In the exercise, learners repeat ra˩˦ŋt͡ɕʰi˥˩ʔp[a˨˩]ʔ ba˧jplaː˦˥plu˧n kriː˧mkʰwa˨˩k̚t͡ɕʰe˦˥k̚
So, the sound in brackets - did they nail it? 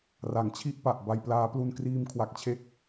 yes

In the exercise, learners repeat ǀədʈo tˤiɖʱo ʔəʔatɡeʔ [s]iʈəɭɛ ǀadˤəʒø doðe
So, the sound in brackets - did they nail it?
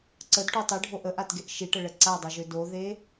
no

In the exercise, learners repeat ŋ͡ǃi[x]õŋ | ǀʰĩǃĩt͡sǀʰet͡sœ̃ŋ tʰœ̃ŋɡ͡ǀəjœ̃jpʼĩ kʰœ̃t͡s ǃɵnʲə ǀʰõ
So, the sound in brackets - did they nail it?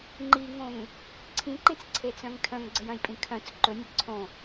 no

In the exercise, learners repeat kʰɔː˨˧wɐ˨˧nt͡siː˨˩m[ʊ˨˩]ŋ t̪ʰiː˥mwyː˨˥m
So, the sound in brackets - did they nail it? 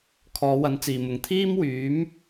yes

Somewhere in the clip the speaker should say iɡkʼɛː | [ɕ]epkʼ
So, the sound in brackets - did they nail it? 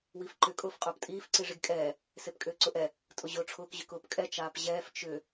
no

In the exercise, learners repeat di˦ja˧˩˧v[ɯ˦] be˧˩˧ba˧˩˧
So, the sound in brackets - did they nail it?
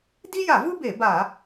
yes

